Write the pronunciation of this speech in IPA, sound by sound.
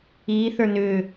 iː θ ə˞ n ʏː

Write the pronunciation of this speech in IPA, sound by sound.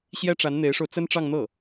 ɕ j ɛ˥ ʈ͡ʂ a˧˥ n n̪ e˧˥ ɪ̯ ʂ o˧ ʊ̯ t͡s ə˥ n ʈ͡ʂ ɑ˥˧ ŋ n̪ ɤ˥˩

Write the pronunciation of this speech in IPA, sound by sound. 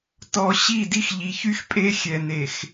t ɔ˨ ɕ i˦˨ d i˦ x ʎ i˨ ç y˦ x pʼ e˦ xʲ ɛ˨ n e˨ x

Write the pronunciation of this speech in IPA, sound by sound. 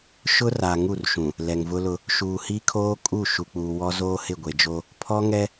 ʃ ʊ˦ r a˨ ŋ u˦˨ r ʃ ũ˨ | l ɛ˨ ŋ v ʊ˦ l ʊ˦ | ʃ uː˨ h i˦ kʰ oː˦ kʼ u˦˨ ʃ u˨ k͡p uː˨ w ɔ˦ z oː˦ h ɪ˦˨ ɡʷ e˨ d͡ʒ o˦ | pʰ ɔ˦ ŋ ɛ˦

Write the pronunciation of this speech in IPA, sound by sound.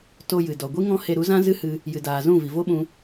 t o˧ j ɨ˨ d ɔ˨ ɡʷ i˦ ŋ ɔ̃˦ h e˧ ɾ u˨˦ z ã˦ z ɨ˦ h ɨ˧ | j ɨ˨ d aː˨ z ũ˦˨ v i˨ v o˦ ɓ ũ˧

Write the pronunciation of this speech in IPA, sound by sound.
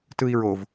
t ɯ i̯ ɹ o v

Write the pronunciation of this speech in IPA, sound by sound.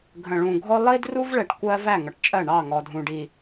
ɡʱ ə̃˨ ɭ ũ˨ ɡʱ ɔ˦ lˠ i˦ d r u˦ v ɭ ɛ˨ ʈ kʷ ɜ˦ v æ˦˨ ŋ ʌ˨ ʈ t͡ʃʼ ɜ˦˨ ɳ ɑ˦˨ ŋ ɔ˨ dʱ ũ˨ ɖ i˨

